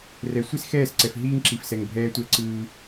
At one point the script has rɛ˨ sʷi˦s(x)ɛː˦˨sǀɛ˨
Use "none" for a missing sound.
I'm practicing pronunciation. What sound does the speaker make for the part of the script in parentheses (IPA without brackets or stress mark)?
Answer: x